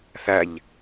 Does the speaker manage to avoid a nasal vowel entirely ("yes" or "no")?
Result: yes